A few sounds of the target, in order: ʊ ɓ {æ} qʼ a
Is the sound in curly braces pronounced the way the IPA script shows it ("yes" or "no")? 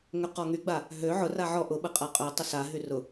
no